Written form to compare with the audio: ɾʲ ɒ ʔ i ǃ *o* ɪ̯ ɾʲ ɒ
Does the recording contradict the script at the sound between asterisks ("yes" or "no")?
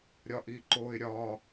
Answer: no